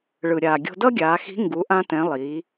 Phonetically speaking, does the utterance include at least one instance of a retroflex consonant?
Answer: yes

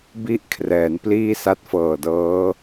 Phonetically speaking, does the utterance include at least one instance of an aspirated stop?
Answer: yes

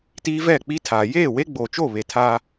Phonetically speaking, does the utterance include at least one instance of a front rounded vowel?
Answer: no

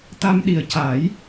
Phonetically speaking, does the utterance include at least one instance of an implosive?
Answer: yes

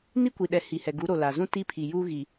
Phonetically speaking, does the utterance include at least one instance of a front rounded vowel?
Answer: no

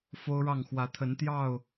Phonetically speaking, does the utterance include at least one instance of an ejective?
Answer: no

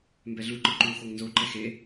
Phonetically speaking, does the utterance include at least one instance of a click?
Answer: yes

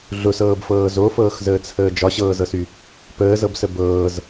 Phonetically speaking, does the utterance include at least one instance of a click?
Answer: no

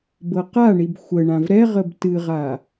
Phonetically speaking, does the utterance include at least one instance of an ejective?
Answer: no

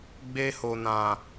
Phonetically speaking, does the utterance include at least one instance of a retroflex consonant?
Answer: no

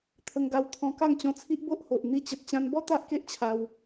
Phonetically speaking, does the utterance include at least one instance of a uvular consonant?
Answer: no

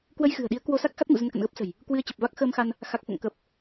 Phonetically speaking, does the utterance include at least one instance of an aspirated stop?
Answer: no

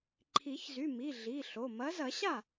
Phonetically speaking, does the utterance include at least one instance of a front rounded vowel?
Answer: yes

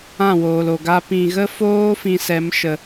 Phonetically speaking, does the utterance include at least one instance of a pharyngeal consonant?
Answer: no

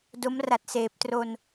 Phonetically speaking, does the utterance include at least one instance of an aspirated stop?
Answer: no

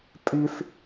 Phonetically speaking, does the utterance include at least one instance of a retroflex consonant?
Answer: no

